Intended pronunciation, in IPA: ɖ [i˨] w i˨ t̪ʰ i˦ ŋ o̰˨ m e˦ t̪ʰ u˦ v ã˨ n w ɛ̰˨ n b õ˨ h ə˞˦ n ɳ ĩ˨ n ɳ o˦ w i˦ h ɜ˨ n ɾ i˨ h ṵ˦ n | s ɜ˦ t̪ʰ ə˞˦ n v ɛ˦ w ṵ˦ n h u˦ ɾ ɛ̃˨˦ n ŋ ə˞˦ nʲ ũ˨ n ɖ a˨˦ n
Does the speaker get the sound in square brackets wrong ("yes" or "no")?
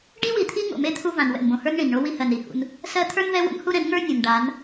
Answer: yes